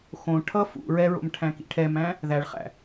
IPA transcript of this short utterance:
x õ ʈʰ ʌ f ṵ ɹ ɛ ɹ o̰ m ʈʰ æ̃ k ḭ ʈʰ ɛ m æ̃ | ð æ ɭ χ æ̰

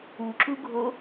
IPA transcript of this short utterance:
u ǁ u ɡʱ o

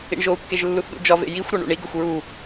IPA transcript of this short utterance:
ḭ ɳ ʒ o u̯ kː e ʒ lː u θ ɗ ṵ d͡ʒ ɒ v ḛ j i xʷ ɾ ɒ ɳ ṵ ɳ i ɡ o xʷ ɹ u

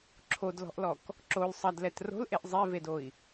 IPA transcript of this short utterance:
ǁʰ o d l ɔ̤ ʔ l ɔ k | ǁ o l sˤ ɐ d l ɛ t r o̤ l ʔ e ʔ zˤ e v e d o i̯

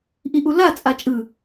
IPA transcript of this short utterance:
ʔ i ʔ u l a t͡sʼ a t͡ʃʼ ɯ

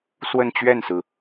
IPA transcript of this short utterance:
s w ə˥˧ n t͡ɕ ɥ ɛ˥˩ n s ɹ̩˩

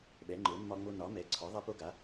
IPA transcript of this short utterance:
ɓ ɛ˩˥ ŋ͡ǃ ə˞˩˥ mː ɒ˦ ŋ͡m o˦ n ɒ˩˥ m ɛ˩˥ ǀʰ ɒ˩˥ ðˤ a˦ p o˦ ɡ a˩˥

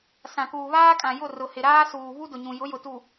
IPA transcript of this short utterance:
s ã˨ k uː˨ β aː˦ kʼ ã˨ j ʊ˦˨ r ʊ˨ h ɪ˨ ɾ aː˦ s uː˨ β u˦ d ʊ˨ ɲ ũ˨ j ʊ˨˦ j ʊ˨ t u˨

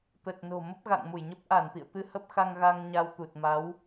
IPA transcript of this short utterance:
t̪ ə˨˩ t̚ n o̤˨˩ m ə˦˥ p̚ ɣ a̰˧˨ ŋ m u˧˩ j ɲ ə˦˥ p̚ ʔ a˧˩ n t̪ ḭ˧˨ ə̯ t̪ ɨ˧ h ə˦˥ p̚ x a˧ ŋ ɣ a˧ ŋ ɲ a˧ w t̪ u˨˩ t̚ m a˨˦ w

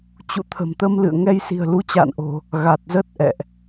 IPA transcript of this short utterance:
t͡ɕ ṵ˧˨ t̪ʰ ə̤˨˩ m t̪ ə˧ m l ɨ̰˧˨ ə̯ ŋ ɛ˧ j s i̤˨˩ ə̯ l u˨˦ t͡ɕ a̰ː˧˨ n ʔ o̤˨˩ | ɣ a˨˩ t̚ z ə˦˥ t̚ ʔ ɛ̰˧˨ ʔ

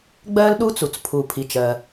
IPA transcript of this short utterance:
ɡ͡b ɜ˥ l ɗ u˥ t͡s u˩ t͡s pʰ u˩ pʰ i˩ t͡ʃ ɜ˩

